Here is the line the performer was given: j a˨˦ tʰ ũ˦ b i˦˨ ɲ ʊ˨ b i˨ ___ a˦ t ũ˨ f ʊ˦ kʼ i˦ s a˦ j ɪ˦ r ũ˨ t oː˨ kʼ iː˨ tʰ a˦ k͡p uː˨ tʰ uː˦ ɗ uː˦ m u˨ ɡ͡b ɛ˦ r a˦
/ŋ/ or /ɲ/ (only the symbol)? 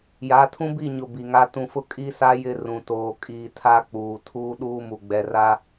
ŋ